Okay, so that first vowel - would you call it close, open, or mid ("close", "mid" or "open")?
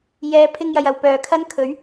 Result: mid